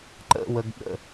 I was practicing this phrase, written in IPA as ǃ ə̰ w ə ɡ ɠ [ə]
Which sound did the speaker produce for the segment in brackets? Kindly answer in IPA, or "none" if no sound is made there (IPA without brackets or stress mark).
ə̰